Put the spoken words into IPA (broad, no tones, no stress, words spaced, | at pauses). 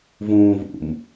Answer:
vũːvṵm